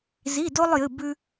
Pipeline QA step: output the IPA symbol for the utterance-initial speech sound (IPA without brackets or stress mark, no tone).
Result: z